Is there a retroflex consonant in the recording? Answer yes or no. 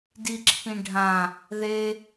yes